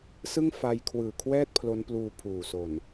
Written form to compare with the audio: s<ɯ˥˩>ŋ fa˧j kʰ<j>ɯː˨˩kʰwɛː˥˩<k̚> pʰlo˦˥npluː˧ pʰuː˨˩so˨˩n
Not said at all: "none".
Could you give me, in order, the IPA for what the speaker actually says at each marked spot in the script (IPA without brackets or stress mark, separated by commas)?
ɯ˥˩, w, t̚